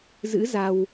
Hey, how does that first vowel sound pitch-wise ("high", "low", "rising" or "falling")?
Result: rising